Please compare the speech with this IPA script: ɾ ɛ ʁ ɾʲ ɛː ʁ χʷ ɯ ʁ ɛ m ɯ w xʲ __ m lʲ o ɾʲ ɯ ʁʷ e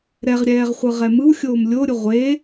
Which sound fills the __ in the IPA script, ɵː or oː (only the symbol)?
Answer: oː